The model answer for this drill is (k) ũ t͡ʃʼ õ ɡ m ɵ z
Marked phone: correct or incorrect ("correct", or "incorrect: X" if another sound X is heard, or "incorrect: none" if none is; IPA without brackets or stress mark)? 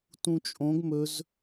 incorrect: t